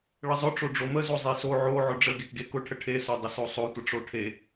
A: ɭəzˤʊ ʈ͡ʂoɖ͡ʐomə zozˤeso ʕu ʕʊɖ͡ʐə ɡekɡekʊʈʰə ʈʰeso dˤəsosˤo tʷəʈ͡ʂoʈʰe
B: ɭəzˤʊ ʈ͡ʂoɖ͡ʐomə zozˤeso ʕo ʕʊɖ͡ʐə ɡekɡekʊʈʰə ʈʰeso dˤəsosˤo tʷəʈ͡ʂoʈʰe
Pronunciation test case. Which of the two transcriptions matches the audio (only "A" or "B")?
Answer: B